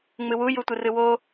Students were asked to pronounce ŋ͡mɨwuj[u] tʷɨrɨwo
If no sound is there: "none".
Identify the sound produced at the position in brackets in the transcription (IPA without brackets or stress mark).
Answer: u